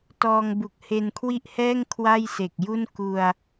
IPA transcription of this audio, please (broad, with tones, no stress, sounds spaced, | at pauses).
t ɔː˧ ŋ b u˨˩ k̚ h e˧ n kʰ w i˥˩ ʔ h ɛː˥˩ ŋ kʰ w a˥˩ j s e˨˩ k̚ j u˥˩ n k u˧ a̯